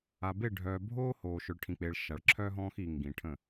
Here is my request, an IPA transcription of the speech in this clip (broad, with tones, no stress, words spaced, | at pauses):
a˨be˦˨ɖʱœː˨ bʱoː˦hoː˨ ʃœ˨ɭʈʰĩ˨k͡peː˨ɭ ʃa˨ɭǁʰœː˦ɦɔ̃ː˦x i˨ŋɡĩ˨ʈʰə̃˦˨